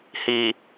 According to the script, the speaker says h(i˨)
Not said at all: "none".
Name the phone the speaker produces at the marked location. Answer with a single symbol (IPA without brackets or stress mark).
i˨